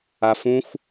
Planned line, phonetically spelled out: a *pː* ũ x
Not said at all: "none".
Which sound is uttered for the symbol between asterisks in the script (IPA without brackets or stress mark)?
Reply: f